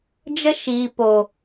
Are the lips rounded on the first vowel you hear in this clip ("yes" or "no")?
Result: no